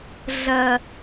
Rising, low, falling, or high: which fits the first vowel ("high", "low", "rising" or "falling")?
high